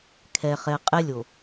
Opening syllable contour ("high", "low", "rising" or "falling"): low